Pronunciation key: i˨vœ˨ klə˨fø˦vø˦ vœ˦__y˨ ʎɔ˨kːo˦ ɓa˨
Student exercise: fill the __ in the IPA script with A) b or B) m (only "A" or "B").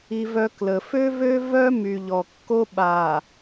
B